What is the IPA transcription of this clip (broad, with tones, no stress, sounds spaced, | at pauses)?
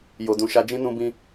j o˨ d ũ˨ ʃ a˧ d͡ʒ ĩ˦ n ũ˧ b ĩ˧